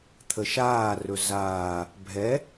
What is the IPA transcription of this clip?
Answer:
t̪ʰəʃaːrɵ zaː | bʱɛ

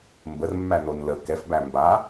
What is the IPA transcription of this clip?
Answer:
mbərmːænon lə kɛfbæ mba

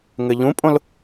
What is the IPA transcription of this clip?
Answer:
ŋɘʎũpʼõl

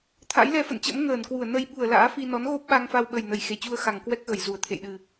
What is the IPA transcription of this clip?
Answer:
t̪ʰa̰˧˥jlɛ˧fə̰˧˨nt͡ɕə̰˧˥m ŋəː˧˩nkwu˧˩ə̯nə˧j ɓu˧˩ə̯ la̰ː˧˥fi˧ nɔ˨˦nɣo˦˥p̚ ɓa˧ŋfa˧wɓə˨˩jnə˧˩j xe˧˩t͡ɕu˧ə̯ xa˨˩ŋkwɛ˦˥k̚ɣə˧˩j zu˧˩ə̯t̪ʰḛ˧˨jɗɨ˨˩

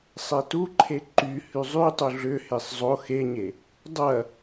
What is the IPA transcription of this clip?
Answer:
sˤetuǃʰe ǃy hyzˤytˤu ɮʏhesˤ zˤo xeɲe | dˤɐ

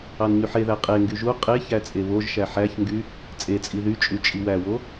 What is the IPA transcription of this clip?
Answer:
ɑnɲyħeðæ qʼeŋɡy ʒu qʼe çæt͡sʼeβoʒʃæ ħæçŋɡy | t͡sʼet͡sʼi ðyt͡ʃʼy t͡ʃʼiwæwo

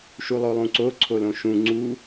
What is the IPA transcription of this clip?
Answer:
ʃulˠolˠũǀo ǀʰolõʃũ ŋ͡ǀu

